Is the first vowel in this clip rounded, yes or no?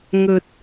yes